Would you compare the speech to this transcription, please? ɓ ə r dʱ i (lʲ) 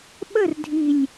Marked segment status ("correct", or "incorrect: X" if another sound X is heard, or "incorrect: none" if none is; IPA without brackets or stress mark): correct